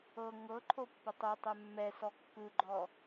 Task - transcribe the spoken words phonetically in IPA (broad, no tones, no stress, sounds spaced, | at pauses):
ɤ ŋ ɤ ǃʰ o pː ɤ tˤ o tˤ ɛ mː ɛ s ɔ kː ɯ ɡ͡ǃ ɔ